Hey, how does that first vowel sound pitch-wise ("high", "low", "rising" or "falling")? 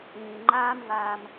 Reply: low